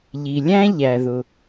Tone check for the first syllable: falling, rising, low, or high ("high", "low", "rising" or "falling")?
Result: low